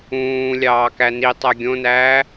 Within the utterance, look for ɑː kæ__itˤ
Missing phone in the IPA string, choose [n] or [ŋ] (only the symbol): n